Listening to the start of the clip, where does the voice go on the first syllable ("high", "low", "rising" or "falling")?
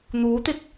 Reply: rising